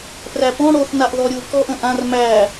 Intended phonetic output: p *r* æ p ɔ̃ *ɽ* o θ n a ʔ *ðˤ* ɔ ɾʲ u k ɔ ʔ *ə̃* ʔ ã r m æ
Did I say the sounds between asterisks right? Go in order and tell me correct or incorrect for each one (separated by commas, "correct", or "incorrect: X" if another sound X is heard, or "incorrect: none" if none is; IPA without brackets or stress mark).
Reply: correct, correct, incorrect: ð, correct